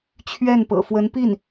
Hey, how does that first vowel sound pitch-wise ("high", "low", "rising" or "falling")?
falling